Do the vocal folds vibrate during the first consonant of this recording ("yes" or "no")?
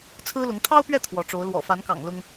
no